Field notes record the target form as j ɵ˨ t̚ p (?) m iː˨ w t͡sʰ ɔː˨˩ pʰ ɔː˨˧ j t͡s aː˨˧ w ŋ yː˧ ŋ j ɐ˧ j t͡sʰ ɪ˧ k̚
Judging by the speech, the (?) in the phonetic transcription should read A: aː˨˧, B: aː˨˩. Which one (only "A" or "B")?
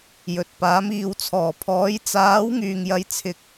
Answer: A